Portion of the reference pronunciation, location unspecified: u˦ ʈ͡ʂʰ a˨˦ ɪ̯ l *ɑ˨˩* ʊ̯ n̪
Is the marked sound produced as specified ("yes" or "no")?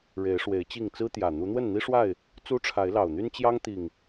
yes